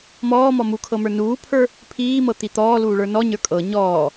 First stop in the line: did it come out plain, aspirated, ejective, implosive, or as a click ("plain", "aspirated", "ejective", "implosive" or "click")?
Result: aspirated